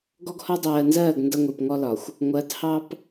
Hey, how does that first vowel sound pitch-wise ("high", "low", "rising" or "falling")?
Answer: high